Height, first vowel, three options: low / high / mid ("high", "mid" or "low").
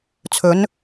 mid